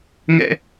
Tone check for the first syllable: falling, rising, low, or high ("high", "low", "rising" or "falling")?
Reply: high